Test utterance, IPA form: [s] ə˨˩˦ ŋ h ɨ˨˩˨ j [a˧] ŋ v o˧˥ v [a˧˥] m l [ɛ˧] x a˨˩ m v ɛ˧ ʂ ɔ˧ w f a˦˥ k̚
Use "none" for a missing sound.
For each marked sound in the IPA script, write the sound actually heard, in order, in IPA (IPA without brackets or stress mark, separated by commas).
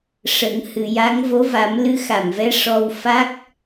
ʂ, a˧˥, a˨˩˦, ɨ˧